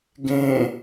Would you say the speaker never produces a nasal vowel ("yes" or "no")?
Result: no